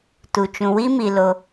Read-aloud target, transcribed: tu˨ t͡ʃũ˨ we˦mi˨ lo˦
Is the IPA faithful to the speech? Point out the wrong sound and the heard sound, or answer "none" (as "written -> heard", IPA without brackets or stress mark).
e˦ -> i˦